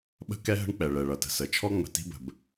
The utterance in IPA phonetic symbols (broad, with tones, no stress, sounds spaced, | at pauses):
ɓ ə̤˥ k ɛ˥ ɦ ə̤˥ ɳ k͡p ɛ˩ ɭ ɛ˩ ɭ ʌ˩ t ə̤˩ s ə˩ t͡ʃʰ ɔ˥ ŋ͡m ə̤˩ t i̤˥ b ə̤˩ b